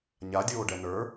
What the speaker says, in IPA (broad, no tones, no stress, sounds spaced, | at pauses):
ɲ a dʲ oː ɖ ɛ n ə˞